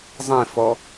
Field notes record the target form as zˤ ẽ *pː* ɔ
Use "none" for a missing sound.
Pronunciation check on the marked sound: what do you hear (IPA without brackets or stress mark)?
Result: f